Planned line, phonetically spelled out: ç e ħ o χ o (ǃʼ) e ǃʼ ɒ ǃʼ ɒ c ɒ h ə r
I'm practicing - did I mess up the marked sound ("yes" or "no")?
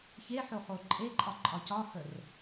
no